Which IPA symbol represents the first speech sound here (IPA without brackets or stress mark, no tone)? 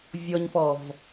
vʲ